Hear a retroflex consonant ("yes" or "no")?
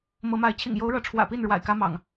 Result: yes